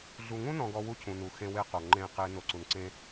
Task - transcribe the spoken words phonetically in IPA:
ɮ u˨ ŋ ũ˦ n ɔ̃˨ ɡ ɔ˨ w u˦ cʰ ũ˨ n u˨ x ẽ˦ w e˦ q o˨ ŋ͡ǃ ẽ˦˨ q e˦ n o˨ ǀ u˨ n ǀ ẽ˦

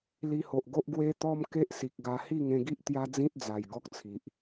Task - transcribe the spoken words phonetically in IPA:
l i˧ h o˨ ʔ ɡ o˦ ʔ ɡ w e˦ t̪ ɔ˦ m k e˦ ʔ s i˨ k̚ ɡ a˧ h i˥˧ ŋ ẽ˧ ɡ i˦ ʔ t̪ j a˦ d͡z ĩ˦ t̚ d͡z a˨˩ j ɡ ɔ˦ k̚ t͡sʰ i˨ ʔ

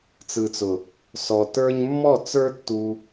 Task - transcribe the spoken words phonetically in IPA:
t͡s ɯ˨ t͡s ʊ˨ | s ɔ˨ t ə˞˦ ɲ mː ɔ˦˨ t͡s ə˞˦ tː u˧

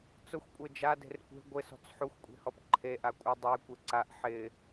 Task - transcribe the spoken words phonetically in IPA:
t͡s ʊ xʷ kʷʼ e d͡ʒ a d e̤ r kʷ e̤ ɡʷ ɪ s ɔ̤ t͡s ħ u xʷ kʷʼ e̤ h ɔ p ǃʰ e ʔ a kʷʼ ɪ dˤ e kʷ e ǀ a ʔ ħ ɪ

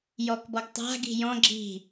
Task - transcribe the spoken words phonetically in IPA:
j ɔ k b ɔ ɡ tˤ a̤ ɡ i̤ j ɔ̃ ɡ͡ǁ i̤

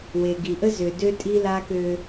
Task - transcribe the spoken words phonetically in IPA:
w e˨ ɡ i˨ ʔ ə˦ z ø˨ d ø˦ tʼ i˦ l a˦ k ø˦

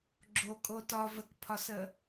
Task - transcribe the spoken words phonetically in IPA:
ɡ͡ǁ o kʼ o t ɒ v ə k pʰ ɒ s ə

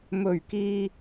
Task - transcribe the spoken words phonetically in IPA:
m ɵ˨˩ ɥ k iː˨

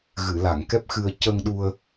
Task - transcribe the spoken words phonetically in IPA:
ɣ ɨ˨˩˨ l a˨˩˨ ŋ k ɛ˦˥ p̚ x ɨ˧ ə̯ c ə˧ ŋ ɗ u˧ ə̯

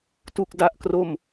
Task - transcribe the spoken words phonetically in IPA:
t u˥˩ k̚ d a˥˩ ʔ k r o˥˩ m

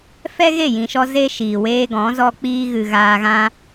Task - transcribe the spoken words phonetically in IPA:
f ɛ˦ ɣ e˦˨ j ĩ˨ ʃ ɔ˧ z e˦ ʃ iː˨ w eː˦ ɡ ɔ̃˨˦ z ɔ˧ k͡p iː˧ ɣ ɨ˨ ɣ aː˧ ɣ ã˦

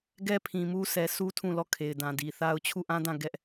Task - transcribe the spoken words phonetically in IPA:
ɡ ɛ˦ pʰ ĩ˨ m u˦ s ɛ˨ s u˦ tʰ ũ˦˨ l ɔ˦˨ kʰ e˨ ɪ̯ d ã˨ d i˨ θ a˦ ʊ̯ t͡ɕʰ u˦˨ ʔ ã˦ d ã˦˨ ɡ ɛ˦ ʔ

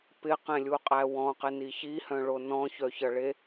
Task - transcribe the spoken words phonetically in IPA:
p ɪ q ẽ lʲ u qʼ æ w ɔ̃ q ɪ n i ç i h œ̃ ɭ o n ɔ̃ ç œ ç ʌ ɭ e

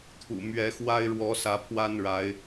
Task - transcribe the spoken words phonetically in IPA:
t̪ʰ ṵ˨˩ m ɥ ɛ˨˦ x w a˦ ɪ̯ ɻ w ɔ˨˦ s ä˨˦ pʰ w a˦ n ɻ a˨˦ ɪ̯

